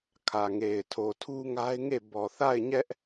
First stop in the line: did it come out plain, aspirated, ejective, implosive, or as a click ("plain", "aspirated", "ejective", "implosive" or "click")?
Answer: aspirated